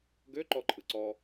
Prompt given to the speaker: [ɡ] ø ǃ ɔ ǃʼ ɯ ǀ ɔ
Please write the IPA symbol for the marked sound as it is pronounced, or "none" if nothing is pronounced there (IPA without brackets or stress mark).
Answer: ɡ